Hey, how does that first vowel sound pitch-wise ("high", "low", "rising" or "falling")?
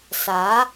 rising